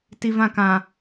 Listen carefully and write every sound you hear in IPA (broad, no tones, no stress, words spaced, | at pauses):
tivãkã